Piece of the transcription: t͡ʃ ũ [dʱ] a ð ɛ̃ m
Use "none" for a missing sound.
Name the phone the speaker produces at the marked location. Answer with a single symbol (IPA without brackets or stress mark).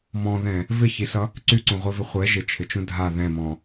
dʱ